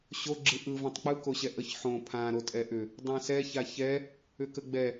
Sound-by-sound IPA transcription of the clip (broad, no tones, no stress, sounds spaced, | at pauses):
ɕ o ɡ͡ǁ ɯ ʔ ɯ v ã tˤ k͡p ɯ k o ɕ ɛ ʔ ə ç ħ õ pʰ ã ɾ o tʼ ɛ ʔ ʏ | dˤ ã s ɛ ç a ç ɛ | ʏ k ə ɡ͡b ɛ